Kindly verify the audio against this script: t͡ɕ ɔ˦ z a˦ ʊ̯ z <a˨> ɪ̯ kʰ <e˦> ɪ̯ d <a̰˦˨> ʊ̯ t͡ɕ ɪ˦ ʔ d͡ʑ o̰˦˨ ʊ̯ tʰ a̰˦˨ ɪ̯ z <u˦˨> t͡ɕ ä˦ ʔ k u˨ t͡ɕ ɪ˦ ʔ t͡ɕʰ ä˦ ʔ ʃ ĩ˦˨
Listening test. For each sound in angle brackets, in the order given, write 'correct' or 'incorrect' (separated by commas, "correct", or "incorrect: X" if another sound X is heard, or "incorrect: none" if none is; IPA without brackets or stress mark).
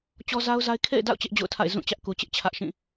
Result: incorrect: a˦, incorrect: ḛ˦˨, correct, incorrect: ũ˦˨